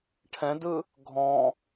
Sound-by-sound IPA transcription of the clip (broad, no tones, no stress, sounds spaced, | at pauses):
ʈʰ ɛ̃ d ɯ | ɡʱ ɔ̃